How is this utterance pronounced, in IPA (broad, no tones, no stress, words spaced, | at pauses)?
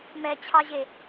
mɛt͡ɕʰɑʑe